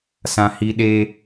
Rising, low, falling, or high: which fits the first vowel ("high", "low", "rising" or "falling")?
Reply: high